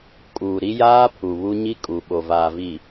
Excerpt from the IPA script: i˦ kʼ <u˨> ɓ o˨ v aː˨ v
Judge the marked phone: correct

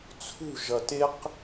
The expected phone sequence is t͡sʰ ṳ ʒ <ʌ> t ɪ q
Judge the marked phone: correct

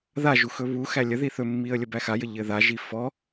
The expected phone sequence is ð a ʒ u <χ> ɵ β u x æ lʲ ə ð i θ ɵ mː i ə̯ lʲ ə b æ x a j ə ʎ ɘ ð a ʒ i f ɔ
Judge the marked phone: incorrect: x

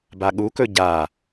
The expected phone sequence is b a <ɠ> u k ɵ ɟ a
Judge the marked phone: correct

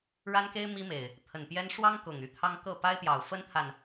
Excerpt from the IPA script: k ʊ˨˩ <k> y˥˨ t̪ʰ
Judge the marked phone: incorrect: ŋ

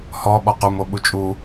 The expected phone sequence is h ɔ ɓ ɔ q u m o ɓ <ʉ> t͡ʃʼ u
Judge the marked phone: incorrect: u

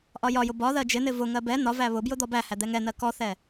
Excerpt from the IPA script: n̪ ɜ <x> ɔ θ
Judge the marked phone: incorrect: k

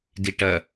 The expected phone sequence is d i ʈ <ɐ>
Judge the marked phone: correct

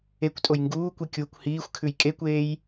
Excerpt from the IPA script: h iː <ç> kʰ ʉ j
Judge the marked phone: incorrect: xʷ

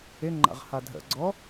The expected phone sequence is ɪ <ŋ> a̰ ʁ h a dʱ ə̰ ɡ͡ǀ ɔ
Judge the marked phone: incorrect: ŋ͡ǃ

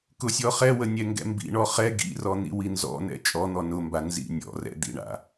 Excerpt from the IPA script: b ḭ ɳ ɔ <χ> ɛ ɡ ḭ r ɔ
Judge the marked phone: correct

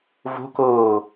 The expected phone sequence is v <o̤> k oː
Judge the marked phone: correct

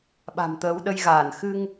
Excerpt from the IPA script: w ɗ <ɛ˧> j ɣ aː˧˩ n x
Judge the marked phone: incorrect: ə˧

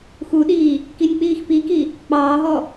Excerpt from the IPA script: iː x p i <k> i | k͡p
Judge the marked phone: correct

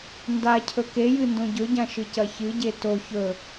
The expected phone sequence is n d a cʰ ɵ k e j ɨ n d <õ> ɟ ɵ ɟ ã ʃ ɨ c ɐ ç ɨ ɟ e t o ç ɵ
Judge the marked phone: correct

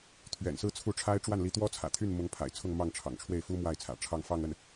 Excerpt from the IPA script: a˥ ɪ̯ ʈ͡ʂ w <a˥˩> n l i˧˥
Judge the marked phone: correct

